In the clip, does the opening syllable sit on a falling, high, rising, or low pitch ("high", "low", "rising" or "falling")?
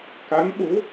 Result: rising